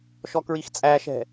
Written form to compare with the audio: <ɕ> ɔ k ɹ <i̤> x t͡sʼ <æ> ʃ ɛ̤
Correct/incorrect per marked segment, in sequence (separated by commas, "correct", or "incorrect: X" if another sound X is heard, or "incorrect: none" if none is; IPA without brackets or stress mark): incorrect: ʃ, incorrect: i, correct